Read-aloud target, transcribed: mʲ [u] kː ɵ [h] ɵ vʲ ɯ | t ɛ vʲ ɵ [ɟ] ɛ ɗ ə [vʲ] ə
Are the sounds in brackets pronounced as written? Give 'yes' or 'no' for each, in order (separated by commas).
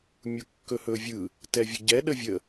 yes, yes, yes, yes